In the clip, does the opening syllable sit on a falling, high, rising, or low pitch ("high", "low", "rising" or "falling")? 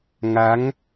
rising